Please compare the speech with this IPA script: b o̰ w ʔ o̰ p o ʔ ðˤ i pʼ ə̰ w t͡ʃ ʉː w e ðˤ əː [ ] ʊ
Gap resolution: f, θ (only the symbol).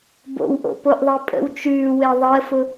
f